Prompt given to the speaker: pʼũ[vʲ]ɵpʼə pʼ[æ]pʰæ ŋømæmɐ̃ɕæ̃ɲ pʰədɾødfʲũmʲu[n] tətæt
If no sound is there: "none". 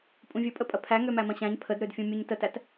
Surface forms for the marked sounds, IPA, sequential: vʲ, ɐ, ɲ

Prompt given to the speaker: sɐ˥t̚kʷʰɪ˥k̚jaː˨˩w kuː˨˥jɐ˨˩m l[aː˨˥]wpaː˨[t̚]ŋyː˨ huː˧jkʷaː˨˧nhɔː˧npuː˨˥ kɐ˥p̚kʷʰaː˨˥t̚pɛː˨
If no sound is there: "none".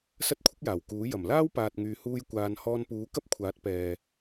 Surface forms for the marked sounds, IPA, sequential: aː˥, t̚

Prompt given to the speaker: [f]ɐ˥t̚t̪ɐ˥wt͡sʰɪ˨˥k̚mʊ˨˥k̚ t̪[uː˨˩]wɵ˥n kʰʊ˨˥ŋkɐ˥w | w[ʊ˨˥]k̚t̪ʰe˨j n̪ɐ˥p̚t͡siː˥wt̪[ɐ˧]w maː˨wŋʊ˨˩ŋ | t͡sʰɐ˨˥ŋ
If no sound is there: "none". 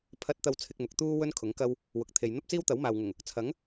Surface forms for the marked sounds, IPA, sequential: pʰ, uː˥, ʊ˨, ɐ˨˥

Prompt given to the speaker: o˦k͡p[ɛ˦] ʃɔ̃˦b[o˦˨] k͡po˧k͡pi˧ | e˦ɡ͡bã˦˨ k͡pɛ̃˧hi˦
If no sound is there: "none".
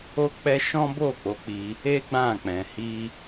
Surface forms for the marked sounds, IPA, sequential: ɛ˦, o˦˨

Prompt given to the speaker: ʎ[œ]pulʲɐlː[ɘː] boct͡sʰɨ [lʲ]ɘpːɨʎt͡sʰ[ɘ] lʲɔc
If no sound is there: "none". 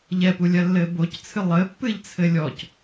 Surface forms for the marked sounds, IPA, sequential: ɛ, ɘː, lˠ, ɘ

